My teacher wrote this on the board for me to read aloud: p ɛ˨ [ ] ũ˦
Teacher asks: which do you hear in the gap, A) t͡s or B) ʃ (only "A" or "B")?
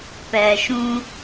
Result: B